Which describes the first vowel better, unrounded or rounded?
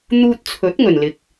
rounded